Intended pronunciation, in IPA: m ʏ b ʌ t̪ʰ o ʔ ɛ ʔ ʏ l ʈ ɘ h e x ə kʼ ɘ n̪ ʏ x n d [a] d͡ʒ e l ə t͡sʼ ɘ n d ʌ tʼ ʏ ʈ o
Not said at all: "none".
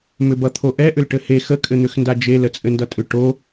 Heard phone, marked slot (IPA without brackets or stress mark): a